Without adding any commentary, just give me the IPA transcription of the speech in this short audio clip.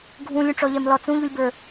ɡʱũlʲũʈ͡ʂɔʎɛm lɔt͡sũʎulʲbə˞

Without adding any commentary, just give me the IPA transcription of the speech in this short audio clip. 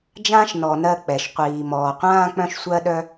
d͡ʒãː˥ʃnɔ˨ nɜ˦k͡pɛ˨ʃ qʷiː˨mɔː˨qʷãː˦ k͡pœ̃˦ʃsʷɜ˦ ɗœ˥

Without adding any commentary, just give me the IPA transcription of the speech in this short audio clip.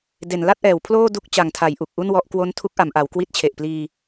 de˩˦nla˥˩t̚ʔɛː˩˦wpʰloː˥˩ du˥˩k̚ t͡ɕa˨˩ŋtʰa˩˦j ʔu˨˩k̚ʔu˥˩n wɔ˦˥ʔ kwo˦˥ntʰu˦˥k̚ʔa˩˦mʔa˩˦w kwi˦˥t̚t͡ɕʰe˨˩ʔpliː˧

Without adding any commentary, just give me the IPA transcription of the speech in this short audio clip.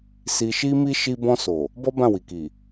si˧ʃi˦mi˦ ʃi˧bɔ̃˧ so˨ | bɔ˦bã˦˨wi˨ki˨

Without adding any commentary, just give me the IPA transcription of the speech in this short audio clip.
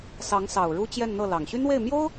sɑ˧˥ŋsɑ˨˩ʊ̯ ɻu˥t͡ɕjɛ˥˧nn̪ɤ˥˩lɑ˨˩ŋ ɕy˥nwe˥˩ɪ̯ mjo˥ʊ̯

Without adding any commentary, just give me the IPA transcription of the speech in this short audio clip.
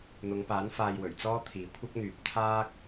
n̪ʊ˨˧ŋpaː˨˥n faː˧jwɵ˨˩ɥt͡sɔː˥ t̪ʰiː˨kʷʰɪ˥k̚n̪yː˨p̚ t̪ʰaː˥k̚

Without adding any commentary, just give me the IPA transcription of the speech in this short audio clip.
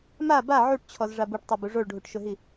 ma ba ʕuʈt͡ɕʰɔzʐa buʈtˤabu ʐoɭɖʱuʈʃʊɦi

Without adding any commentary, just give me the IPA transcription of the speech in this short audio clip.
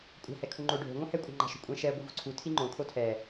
kʷʼa̤ hɛkʰuŋ͡ǃo ɖʱo̤ ŋʷɛ̃hɛ kʷʼa̤ŋ͡ǃa̤ʃo̤kʷʼɛ̃ ʃɛ ɡʷivo̤ǀʰu tʰiŋ͡ǃõ kʰotʰɛ

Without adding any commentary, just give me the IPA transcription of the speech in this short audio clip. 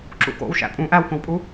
ǁṵko̰w ʃæ̰pʼũ ʔæwkõwpʼu

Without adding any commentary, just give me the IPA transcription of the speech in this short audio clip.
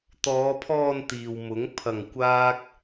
t̪ɔː˨˧pʰɔː˧n t̪iː˨wmʊ˨˥ŋ pʰɐ˧ŋkʷaː˥k̚

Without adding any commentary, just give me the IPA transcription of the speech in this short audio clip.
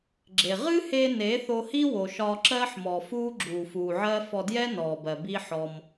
ɡ͡ǁe˨ ʁɨ˦he˧ ne˨˦θo˧hi˦wo˨ ʃɒː˧ǁɜ˦ħmɔ˨fuː˦ ɡ͡ǁuː˨fuː˨ʕɜ˦ fɔ˧djɛ˦nɔː˨bɜ˨ bi˦ħɔ˧m

